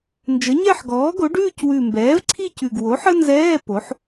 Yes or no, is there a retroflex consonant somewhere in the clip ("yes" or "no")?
yes